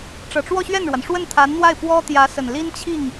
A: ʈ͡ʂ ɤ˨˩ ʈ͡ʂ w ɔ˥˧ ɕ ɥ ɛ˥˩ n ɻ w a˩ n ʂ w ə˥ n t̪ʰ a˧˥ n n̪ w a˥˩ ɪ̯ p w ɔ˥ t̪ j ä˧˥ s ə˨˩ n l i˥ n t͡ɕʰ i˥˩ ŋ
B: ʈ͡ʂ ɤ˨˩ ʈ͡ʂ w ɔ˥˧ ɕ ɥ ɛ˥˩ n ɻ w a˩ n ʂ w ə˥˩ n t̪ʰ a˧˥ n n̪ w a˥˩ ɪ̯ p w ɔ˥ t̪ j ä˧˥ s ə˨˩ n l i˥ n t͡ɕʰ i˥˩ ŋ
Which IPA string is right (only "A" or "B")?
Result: B